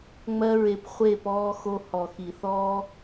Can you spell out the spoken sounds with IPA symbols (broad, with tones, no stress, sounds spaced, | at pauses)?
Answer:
ŋ͡m ɜ˦ ɹ e˧ p χʷ e˦˨ p ɔː˧ x o˧ h ɔ˨ x i˨ θ ɔː˦